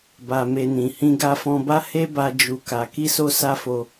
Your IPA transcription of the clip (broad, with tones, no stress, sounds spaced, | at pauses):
b a˧ m e˧ n ĩ˨ h ĩ˧ ɡ a˧ f ɔ̃˧ b a˦ h e˦ b a˧ d͡ʒ u˧ k a˧ k i˦ s o˦ s a˦ f o˧